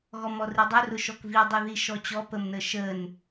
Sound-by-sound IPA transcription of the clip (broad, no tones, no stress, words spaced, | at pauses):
ɣɔmɔridˤʊ rʊʃɔkvi dˤiðiʃɔt͡ɕɔ pəmnəʃən